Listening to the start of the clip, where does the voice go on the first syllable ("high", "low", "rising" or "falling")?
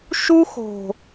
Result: high